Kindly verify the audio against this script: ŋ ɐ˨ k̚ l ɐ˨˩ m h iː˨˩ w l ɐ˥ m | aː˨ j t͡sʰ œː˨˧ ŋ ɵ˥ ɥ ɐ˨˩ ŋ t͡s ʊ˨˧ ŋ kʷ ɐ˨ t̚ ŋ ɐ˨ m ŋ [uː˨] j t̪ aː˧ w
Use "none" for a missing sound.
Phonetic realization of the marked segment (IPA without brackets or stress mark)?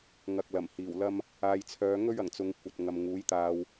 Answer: uː˨˥